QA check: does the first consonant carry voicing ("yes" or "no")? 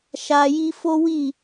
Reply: no